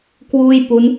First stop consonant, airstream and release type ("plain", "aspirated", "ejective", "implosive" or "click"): plain